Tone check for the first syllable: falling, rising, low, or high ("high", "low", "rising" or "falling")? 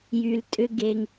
low